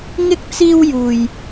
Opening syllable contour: high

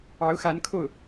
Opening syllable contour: rising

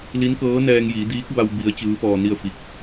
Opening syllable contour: rising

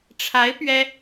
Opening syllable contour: rising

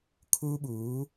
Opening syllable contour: high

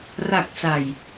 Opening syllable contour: low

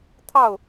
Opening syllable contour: falling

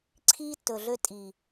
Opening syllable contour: high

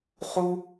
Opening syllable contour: high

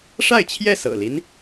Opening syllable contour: falling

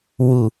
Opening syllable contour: low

